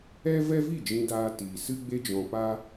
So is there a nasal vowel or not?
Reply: yes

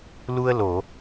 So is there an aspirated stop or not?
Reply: no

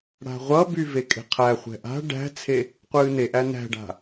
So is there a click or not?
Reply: no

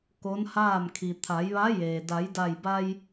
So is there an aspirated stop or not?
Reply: yes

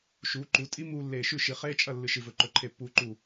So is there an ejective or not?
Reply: yes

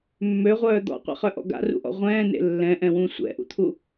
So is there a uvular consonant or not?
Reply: yes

